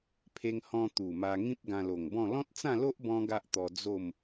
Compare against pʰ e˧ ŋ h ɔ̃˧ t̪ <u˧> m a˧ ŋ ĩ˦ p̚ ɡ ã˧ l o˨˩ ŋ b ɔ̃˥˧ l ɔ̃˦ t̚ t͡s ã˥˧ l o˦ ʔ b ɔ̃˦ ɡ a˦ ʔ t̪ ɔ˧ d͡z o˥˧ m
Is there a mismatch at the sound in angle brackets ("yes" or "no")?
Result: yes